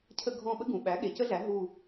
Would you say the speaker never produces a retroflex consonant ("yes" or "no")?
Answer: yes